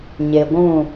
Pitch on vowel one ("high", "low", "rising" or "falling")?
low